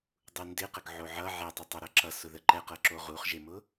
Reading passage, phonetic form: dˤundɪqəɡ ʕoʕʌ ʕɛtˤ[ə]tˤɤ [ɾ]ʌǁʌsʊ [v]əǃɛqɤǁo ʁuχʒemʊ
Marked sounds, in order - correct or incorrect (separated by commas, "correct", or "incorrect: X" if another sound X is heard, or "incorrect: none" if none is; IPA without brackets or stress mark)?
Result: correct, correct, incorrect: ð